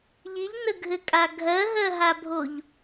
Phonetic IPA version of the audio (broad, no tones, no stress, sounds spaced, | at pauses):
ʎ i ʎ n ə ɡʱ ɘ kʼ a ɡʱ ɜ ɦ ɜ ɦ a bʱ o ʎ